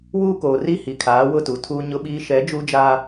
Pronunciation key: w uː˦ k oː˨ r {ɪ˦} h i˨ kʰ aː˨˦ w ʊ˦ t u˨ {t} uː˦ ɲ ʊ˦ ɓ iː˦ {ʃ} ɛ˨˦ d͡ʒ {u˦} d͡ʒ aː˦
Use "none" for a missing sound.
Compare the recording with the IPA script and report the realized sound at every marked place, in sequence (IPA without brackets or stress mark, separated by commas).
i˦, tʰ, ʃ, u˦